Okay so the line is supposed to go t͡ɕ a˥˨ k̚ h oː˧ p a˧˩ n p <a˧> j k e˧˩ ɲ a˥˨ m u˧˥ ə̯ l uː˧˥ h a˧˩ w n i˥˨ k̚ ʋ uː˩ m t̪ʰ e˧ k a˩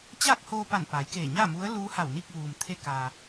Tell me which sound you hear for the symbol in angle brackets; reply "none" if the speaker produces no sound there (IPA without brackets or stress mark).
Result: a˩˧